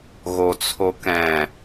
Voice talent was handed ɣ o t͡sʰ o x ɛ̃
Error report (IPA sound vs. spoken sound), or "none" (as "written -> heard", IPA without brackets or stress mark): x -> k